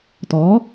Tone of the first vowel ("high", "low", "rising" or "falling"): rising